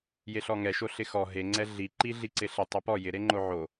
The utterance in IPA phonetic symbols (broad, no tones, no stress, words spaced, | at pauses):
jeɬɔŋɛʃo ɬɪxɔ ɦeŋ͡ǀɛ ɮiǃi ɮiǀɪɬe tˤepɔ jɪɾeŋ͡ǃo ʕo